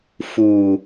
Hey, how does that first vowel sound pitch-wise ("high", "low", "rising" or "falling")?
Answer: low